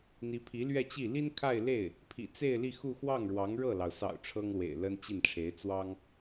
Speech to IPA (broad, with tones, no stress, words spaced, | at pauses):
n̪i˧˥pʰi˧˥lɥɛ˥˧t͡ɕi˥˩ li˥n kʰa˥˧ɪ̯le˥˩ɪ̯ | pʰḭ˨˩t͡se˥˧ɪ̯li˥˧ xu˥˧ xwɑ˥˩ŋɻwɑ˧˥ŋ ɻɤ˥˩lɑ˩ʊ̯sɑ̰˨˩ʊ̯ ʈ͡ʂʰɤ˥ŋlwḛ˨˩ɪ̯ lə˥nt͡ɕi˥˩nʈ͡ʂʰe˧˥ɪ̯ t͡swɑ˥ŋ